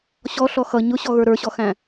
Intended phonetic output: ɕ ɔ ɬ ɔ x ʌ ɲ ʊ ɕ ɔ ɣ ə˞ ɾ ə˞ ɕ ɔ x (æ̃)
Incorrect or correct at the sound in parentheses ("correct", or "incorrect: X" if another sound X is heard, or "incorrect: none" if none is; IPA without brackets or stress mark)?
correct